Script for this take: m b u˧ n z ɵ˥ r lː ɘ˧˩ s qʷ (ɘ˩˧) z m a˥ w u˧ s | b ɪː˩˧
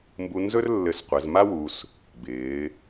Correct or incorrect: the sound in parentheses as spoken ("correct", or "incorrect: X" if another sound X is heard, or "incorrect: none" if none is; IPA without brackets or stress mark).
correct